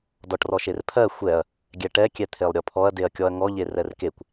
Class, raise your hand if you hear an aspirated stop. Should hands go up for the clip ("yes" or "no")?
yes